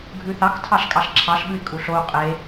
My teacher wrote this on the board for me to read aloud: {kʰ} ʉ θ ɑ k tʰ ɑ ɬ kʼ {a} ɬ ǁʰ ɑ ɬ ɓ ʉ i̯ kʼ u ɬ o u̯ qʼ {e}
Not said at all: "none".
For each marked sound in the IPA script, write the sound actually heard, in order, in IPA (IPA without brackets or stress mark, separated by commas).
ɡʱ, ɑ, e